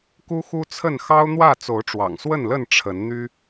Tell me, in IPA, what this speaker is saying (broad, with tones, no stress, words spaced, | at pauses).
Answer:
ku˦xu˦t͡sʰə˥˨n xɑ˦ʊ̯n̪wä˥˨ t͡so˨˦ʊ̯ʈ͡ʂwɑ̰˨˩ŋswə˥˨nlə˥˨n ʈ͡ʂʰə˨˦nn̪y˦